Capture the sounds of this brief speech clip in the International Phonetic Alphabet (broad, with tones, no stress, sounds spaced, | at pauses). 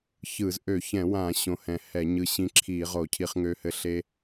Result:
ç ɯ˧˩˧ z ʔ ø˧˩˧ ç ɛ̃˧˩˧ w ã˧˩˧ ɕ õ˧ h ɛ̃˧ h ɛ˧˩˧ ɲ ɯ˧ ɕ ĩ˧ ǁʰ i˧˩˧ ʁ o˧˩˧ cʰ i˧ χ ŋ ø˧ h ɘ˧ ɬ e˧